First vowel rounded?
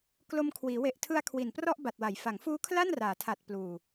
yes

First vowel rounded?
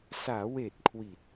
no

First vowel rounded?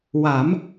no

